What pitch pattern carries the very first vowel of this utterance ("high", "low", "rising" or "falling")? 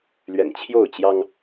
low